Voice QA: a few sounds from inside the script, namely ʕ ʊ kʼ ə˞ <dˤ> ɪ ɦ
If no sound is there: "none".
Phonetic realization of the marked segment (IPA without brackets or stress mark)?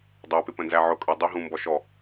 dˤ